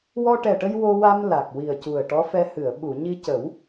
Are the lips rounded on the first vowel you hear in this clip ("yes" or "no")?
yes